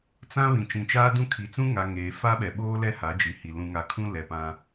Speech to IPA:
t͡sã˦ βĩ˨t͡ʃĩ˨t͡ʃaː˦dũ˦ kʰi˨t͡sũ˦ŋa˨ ŋeː˨fa˦ɓɛ˨ ɓoː˦lɛ˦ ha˨˦d͡ʒi˨hi˨ lũ˨ŋa˨kʰũ˦ lɛ˨pã˦

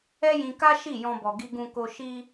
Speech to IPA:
ɛ˦jĩ˧ka˦ ʃi˦˨jɔ̃˧bɔ˨ ɡi˧ɡũ˧ko˧ ʃi˧

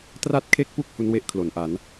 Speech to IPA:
tra˥˩t̚kʰe˥˩k̚pu˥˩k̚ hu˦˥nwe˥˩ʔkʰlo˩˦n ʔa˩˦n

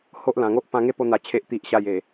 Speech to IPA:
ho˦ʔlã˨˩ŋo˦ʔ pã˧ŋe˦ po˧n̪a˨˩ t͡ɕʰe˨ʔ t̪i˨ʔɕa˨˩j e˨˩

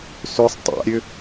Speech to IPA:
søsˤ tˤa̰ɾʲø

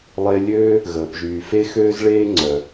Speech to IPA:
lˠe˧ lʲøː˥ | ɣəː˩pʒyː˩fe˥ xøː˥zɭeː˥ ŋ͡ǀœ˩

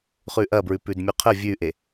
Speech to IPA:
χʉʔɐbɹʉ pʉdmʲʉqʰə vʲʉʔe

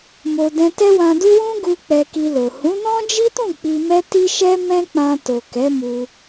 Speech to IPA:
mo˧ dɛ̃˧tɛ˦wã˧du˦ wũ˦ɡu˧ k͡pɛ˧ki˧lo˨ hũ˨˦nɔ̃˦d͡ʒi˦tũ˦˨ k͡pi˧mɛ˦ ti˦ʃɛ˦mɛ̃˦ k͡pã˧to˨ kɛ˨˦mu˧

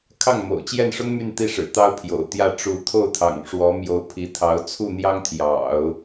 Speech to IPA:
kʰɑ˥˩ŋmo̰˨˩ʊ̯t͡ɕjɛ˥˩nʂʊ˥ŋ my˥˧nt̪i˥˩ʂɻ̩˨˩ t̪ɑ˥ʊ̯pʰjo̰˨˩ʊ̯t̪jä˥˩ ʈ͡ʂu˧˥t̪ʰo˥˩ʊ̯t̪ʰɑ̰˨˩ŋ ʂwɔ˧˥mjo˧˥ʊ̯ pʰi˧˥t̪ʰɑ˧˥ʊ̯ t͡sʰu˥˩n̪jɑ˥ŋt̪ʰjɑ̰˨˩˦ʊ̯

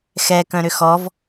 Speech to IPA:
xɛ kœ̃ɾʏxɔv

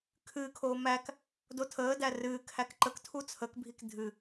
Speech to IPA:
kʰɨːkʰoː mæk | dotʰəːdæ rɨː kʰækǃəktʰu t͡sʰəkbʱik dʱɨ

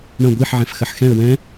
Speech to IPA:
ɳɐ̃ ɡʷiħʕɛ̃fxɐħ xɛ̃ə̯ wɛ̃

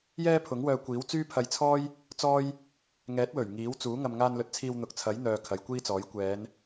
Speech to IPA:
jɛː˥pʰʊ˨˥ŋwœː˧kʷiː˨˥w t͡syː˥pʰɐ˧jt͡sʰɔː˥j | t͡sɔː˥j | ŋɛː˨˥t̚wɵ˨˩ɥ ŋiː˨˥wt͡suː˨˥ ŋɐ˨mŋaː˧nlɵ˨˥t̚t͡sʰiː˧w n̪ʊ˨k̚t͡sʰɐ˨˥jn̪œː˨ kʰɐ˨˧jkʷiː˥t͡sɔː˨˥j kʷɛː˨˧n

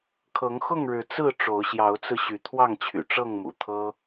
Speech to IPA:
kʰɤ˨˦ŋxʊ˥˨ŋ ɻɻ̩˨˦t͡sɹ̩˥˨ ʈ͡ʂo˨˦ʊ̯ɕjɑ˨˦ʊ̯t͡sɹ̩˧ ɕy˨˦t̪ʰwɑ˥˨ŋt͡ɕʰy̰˨˩ ʈ͡ʂɤ˥˨ŋmṵ˨˩t̪ʰɤ˦

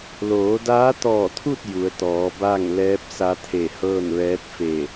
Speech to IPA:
loː˩˧daː˧˥t̪ɔː˧˩t̪ʰu˥˨t̚ ju˩˧ə̯t̪ɔː˩˧ ba˥˨ŋ lɛː˧˥p̚sa˧˥t̪ʰe˧˩hɤː˥˨n ʋɛː˧˥t̚fe˧˩

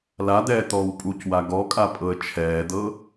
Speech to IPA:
lad̪ɛː t̪ɔːwpʼucwa ɡɔkʼa pʼɤə̯t͡ʃʰɛːd̪ɤ

